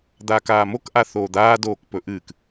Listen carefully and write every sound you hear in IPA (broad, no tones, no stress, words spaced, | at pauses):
d̪aːkaːmok ʔaθoːd̪aː doːkpɵʔɨːk